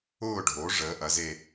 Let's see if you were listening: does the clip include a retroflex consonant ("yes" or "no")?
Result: yes